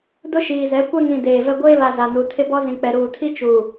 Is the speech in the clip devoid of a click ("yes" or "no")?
yes